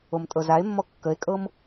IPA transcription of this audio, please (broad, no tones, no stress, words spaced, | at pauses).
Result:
omtʼɤzae̯mːɔ kːəe̯kʼɤm